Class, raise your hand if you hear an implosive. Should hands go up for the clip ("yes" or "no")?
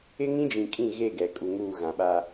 yes